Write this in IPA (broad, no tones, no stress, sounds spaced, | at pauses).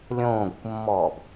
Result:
lʲ õː ɡʷ ɘ kʷ mː ɔː b